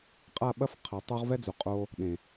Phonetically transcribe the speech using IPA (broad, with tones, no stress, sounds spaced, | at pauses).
qʼ a˦˨ ɓ ɐ˦ f qʰ ɐ˨ tˤ u˦ ʁ v ɛ˦ d͡z u˨ qʼ o˧ | ɗ ẽ˨